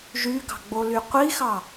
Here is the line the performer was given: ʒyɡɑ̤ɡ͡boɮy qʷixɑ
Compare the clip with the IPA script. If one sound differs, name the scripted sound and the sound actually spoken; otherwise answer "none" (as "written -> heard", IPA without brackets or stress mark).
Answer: ɮ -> l